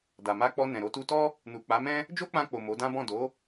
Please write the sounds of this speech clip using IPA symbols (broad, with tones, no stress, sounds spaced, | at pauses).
d a˨ m a˧ k͡p ɔ˧ n ɛ̃˨ ɾ o˧ t u˧ t ɔ˦ | n u˨ k͡p a˨˦ m ɛ̃˦ | d͡ʒ o˦ k͡p ã˧ k͡p o˨ m o˨˦ d ã˦ b ɔ̃˦˨ d o˨˦